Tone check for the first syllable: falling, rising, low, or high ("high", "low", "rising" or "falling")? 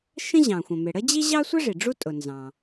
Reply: high